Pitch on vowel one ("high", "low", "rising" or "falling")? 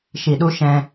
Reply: low